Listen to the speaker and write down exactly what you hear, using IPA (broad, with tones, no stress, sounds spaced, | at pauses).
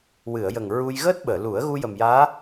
w ɨ˨˩˨ ə̯ j ə˨˩ ŋ ɹ u˧ j ɣ əː˦˥ t̚ ɓ əː˨˩˨ l u˨˩˦ ə̯ ɣ u˧ j ə˨˩ m j aː˧˥